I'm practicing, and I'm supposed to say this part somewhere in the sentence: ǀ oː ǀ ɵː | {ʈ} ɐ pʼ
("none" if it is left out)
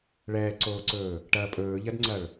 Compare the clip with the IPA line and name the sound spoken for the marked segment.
ʈ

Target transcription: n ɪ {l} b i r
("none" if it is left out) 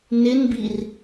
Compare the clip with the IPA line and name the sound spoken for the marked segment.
n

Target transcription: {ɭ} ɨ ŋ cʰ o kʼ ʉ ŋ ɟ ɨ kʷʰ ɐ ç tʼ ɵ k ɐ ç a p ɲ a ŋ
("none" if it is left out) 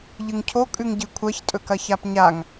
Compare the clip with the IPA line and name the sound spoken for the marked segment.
ʎ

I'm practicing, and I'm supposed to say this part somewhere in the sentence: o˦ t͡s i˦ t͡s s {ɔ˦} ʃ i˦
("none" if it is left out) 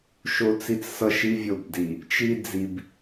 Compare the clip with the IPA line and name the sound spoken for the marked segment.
ʌ˦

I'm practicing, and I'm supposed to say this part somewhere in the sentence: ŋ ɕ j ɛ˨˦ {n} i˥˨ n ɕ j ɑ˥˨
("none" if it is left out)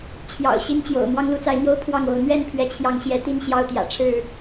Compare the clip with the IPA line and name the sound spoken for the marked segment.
t̪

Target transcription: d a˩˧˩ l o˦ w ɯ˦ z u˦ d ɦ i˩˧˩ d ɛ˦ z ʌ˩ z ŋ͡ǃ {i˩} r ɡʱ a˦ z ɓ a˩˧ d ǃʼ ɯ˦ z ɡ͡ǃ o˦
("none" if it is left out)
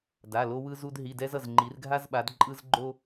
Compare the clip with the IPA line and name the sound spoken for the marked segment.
i˩˧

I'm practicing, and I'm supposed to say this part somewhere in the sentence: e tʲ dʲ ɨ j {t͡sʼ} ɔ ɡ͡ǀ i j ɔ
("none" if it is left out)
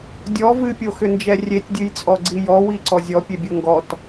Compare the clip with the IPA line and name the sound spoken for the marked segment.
t͡sʼ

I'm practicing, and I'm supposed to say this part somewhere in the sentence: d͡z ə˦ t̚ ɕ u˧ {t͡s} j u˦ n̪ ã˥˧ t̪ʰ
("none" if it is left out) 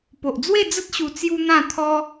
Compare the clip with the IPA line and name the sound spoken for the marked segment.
t͡s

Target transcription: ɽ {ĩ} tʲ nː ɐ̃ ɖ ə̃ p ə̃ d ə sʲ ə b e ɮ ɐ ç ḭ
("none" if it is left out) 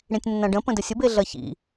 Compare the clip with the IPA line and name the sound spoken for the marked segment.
ĩ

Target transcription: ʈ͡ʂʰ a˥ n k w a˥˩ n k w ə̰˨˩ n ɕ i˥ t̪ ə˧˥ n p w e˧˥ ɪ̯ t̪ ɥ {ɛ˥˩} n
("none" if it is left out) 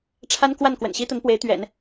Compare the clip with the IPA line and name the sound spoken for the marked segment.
ɛ̰˨˩˦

